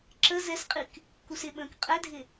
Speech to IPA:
ǁə zɛsqʼik | kusɪɓə̃ːk qʼɛdʱɪ

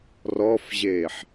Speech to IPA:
rɔfʑeːħ

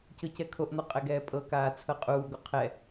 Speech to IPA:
cɤcɛkʰoʔn̪ɔ qʼɛɡɛːpʼɤkaː t͡sʰɤqʼuːɡo qʰɛ

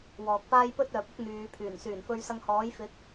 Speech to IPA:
wɔː˨k̚paː˥j pɵ˥t̚œː˨p̚ʊ˥k̚ n̪yː˨˧pʰyː˨˩n syː˨˩nfɵ˧ɥsɐ˧ŋhɔː˨˥j fɪ˨˥k̚

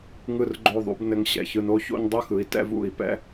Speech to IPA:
ŋɯ˥˩rɡ͡ǃo˥˩ðˤṵ˩˥b nɘ˧ŋ ɕɛ̰˩çɯ˧no˥ ço̰˥ɲdˤɯ˥xɯ˩˥i̯ tɛ̰˥vṵ˥˩i̯ pɛ̰˥

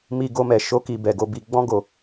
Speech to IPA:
mi˧ɡo˧ mɛ˨ ʃo˧ki˨ bɛ˨ ɡo˧bi˧ ɡ͡bɔ̃˧ɡo˨

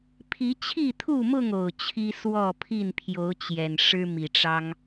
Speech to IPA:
pʰi˨˦t͡ɕʰi˥˨t̪ʰu˥˨mʊ˥˨ŋ o˨˩ʊ̯t͡ɕʰi˦ swɔ˥˨pʰi˥˨npʰjo˨˦ʊ̯ t͡ɕjɛ˨˩nʂɻ̩˦mi˨˩ʈ͡ʂɑ˦ŋ

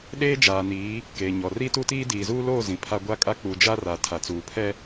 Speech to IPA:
ɗeː˦d͡ʒaː˨niː˨˦ | keː˨ɲɔ˨ ri˦tu˦tiː˦ diː˨zuː˦loː˦˨ zĩ˨pʰa˦ ɡʷa˦kʼa˦k͡pu˨ d͡ʒa˦ra˨ tʰa˨t͡suː˨pʰɛ˦

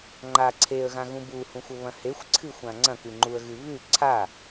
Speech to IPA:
ŋ͡ǃa ǀʰeə̯ɣãɣũ buhũxʷɵβɐ̃ hexʷǀʰɨxʷã ŋ͡ǀɐ̃kɨŋ͡ǃuə̯ɣɨ βʉ ǀʰa

